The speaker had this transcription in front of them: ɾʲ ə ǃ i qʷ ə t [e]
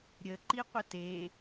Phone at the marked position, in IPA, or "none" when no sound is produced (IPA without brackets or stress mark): e